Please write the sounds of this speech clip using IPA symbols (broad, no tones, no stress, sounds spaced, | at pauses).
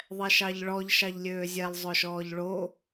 ðˤ ɛ ʃ ɑ ʎ ɭ ɔ ʎ ʃ ɑ ʎ lʲ øː zʲ ɛ lˠ zˤ ɵ ʃ ɔː ʎ ɭ o